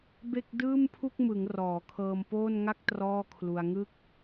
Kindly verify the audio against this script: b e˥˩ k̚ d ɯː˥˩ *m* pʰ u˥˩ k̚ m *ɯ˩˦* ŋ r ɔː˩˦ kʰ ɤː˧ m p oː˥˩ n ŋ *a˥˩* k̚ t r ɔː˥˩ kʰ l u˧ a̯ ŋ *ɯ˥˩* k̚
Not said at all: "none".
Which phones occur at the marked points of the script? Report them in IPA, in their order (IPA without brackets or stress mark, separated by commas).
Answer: m, ɯ˩˦, a˥˩, ɯ˥˩